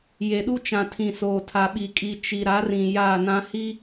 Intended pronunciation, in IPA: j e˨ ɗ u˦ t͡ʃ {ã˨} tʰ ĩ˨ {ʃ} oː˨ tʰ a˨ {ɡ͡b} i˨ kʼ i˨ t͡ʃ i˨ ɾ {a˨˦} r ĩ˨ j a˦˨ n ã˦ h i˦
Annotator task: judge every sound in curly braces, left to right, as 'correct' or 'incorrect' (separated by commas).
correct, incorrect, incorrect, correct